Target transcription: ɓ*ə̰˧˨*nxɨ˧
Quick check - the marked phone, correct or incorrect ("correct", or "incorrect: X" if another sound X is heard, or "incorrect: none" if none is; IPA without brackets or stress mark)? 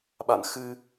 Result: incorrect: a̰˧˨